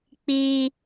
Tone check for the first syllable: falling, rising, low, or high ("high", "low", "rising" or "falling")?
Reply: high